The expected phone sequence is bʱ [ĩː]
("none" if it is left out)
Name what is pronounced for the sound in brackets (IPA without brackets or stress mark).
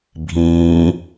ĩː